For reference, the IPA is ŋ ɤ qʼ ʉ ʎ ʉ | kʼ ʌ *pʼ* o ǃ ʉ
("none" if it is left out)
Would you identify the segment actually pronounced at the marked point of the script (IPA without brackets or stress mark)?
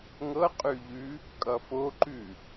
f